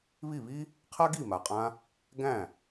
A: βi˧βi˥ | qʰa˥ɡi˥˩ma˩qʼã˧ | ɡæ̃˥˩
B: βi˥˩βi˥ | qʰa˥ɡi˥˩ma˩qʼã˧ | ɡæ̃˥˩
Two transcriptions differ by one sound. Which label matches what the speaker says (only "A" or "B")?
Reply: B